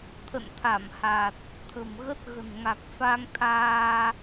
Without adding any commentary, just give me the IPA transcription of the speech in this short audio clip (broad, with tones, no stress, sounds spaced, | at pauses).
t̪ʰ ə̰˧˨ n t̪ʰ a˧˩ m h a˨˩ t̚ | t̪ʰ ə̤˨˩ m ɣ ə˦˥ t̚ ɣ ə̤˨˩ n ŋ a˨˩ k̚ f a˧ ŋ t̪ʰ aː˧